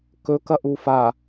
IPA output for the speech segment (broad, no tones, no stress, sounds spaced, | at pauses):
k ɵ k ɐ ʔ u f a